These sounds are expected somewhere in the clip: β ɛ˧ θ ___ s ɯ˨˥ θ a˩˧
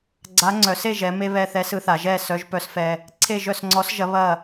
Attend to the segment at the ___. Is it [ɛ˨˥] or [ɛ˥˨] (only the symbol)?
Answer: ɛ˨˥